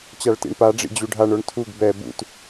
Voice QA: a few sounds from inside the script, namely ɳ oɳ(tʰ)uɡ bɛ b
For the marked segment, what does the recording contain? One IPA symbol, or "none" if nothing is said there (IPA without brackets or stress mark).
tʰ